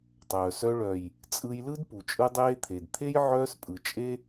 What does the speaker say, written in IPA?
tˤ œː˨ s œ˧ ɭ œ˨ j | t͡sʼ ɯ˧ j l ɯ˦ d p u˨ t͡ʃʼ ɯ˧ dˤ eː˧ t̪ʰ e˨ d t̪ʰ e˦ j ʕ œː˧ s pʼ ɯ˨ t͡ʃʼ e˧

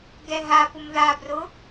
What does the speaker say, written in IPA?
ɡ ɛ ɦ a p ʊ m ð a b r ʊ

